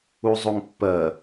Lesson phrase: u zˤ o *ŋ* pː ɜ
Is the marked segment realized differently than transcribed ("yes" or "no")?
no